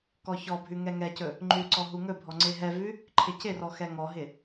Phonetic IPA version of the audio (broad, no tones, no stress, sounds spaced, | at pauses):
k ɔ ç ɔ bʱ ʉ ŋ ɛ ŋ ɛ c ɵ | ŋ͡ǃ ʉ ǀ ɔ ɦ u ŋ ɵ bʱ ɔ ŋ͡ǀ e ɦ ɛ v ʉ | ǃʰ ɪ c ɪ r ɔ x ɛ ŋ ɔ ɦ ɪ